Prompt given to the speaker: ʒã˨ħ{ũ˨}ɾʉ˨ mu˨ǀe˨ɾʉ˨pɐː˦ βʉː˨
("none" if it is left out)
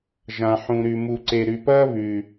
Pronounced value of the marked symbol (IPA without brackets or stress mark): ũ˨